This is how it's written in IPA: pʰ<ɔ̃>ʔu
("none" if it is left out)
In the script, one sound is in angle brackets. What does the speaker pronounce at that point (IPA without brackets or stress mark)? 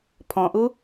ɔ̃